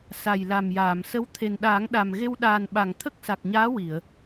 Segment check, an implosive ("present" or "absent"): present